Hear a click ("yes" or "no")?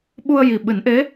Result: no